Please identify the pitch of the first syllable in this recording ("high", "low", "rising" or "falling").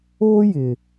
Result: high